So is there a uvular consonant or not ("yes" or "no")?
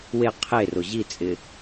yes